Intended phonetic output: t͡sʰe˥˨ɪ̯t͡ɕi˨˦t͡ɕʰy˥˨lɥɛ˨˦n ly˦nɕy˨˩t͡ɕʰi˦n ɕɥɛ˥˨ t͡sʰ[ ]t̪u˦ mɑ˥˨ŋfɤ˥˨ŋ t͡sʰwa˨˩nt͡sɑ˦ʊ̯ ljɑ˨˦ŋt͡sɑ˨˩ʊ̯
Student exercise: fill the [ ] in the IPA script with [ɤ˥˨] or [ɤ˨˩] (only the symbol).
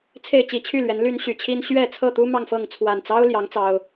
ɤ˥˨